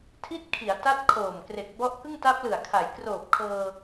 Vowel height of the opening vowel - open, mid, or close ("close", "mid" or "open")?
close